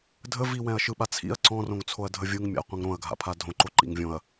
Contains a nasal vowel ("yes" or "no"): yes